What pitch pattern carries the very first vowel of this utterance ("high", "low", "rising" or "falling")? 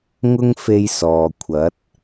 high